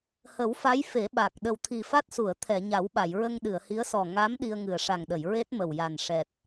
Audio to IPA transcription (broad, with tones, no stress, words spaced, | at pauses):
hə˨˩˦wfa˧˥j fe˨˩˦ ɓa˨˩k̚ ɗə˨˩wt̪ʰi˨˩fa˦˥t̚su˨˩˨ə̯ t̪ʰɛ˨˩˨ɲa˨˩˦wɓa˨˩˨jɹə˧ŋ ɗɨ˨˩˨ə̯hi˧˥ə̯sɔ˨˩ ŋa˧˥m ɗi˧ə̯ŋɨ˨˩ə̯ ʂa˨˩ŋɗə˨˩˨j ɹe˦˥t̚mə˨˩w ja˨˩nʂɛ˨˩t̚